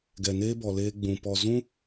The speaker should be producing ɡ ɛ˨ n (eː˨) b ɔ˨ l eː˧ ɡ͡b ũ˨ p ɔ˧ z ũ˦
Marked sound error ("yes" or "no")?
yes